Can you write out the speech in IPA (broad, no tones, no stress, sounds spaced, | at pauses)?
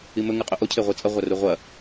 i m ɵ ŋ ɨ qʼ ɵ ʔ o cʰ e ʁʷ i t͡sʼ ɐ ʁʷ a r u ʁʷ ɐ